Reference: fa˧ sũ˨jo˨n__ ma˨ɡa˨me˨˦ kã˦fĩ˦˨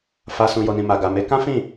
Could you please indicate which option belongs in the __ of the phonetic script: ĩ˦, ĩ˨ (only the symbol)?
ĩ˨